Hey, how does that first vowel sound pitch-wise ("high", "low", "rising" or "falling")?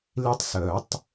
high